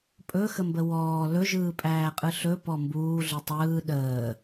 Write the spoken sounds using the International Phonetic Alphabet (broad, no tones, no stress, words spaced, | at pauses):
pʼɵxəmbə wɔː lɵʒɯːpʼæːqʼɯ ɬɵpɔ mbuːɮɯ tˤɯː ɗəː